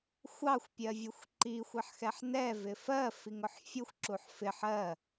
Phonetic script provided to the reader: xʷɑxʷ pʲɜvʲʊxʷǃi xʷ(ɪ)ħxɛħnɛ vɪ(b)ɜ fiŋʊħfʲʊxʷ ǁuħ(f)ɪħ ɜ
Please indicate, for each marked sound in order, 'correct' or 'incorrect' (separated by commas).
correct, incorrect, correct